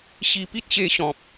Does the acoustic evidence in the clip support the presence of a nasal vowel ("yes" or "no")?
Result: yes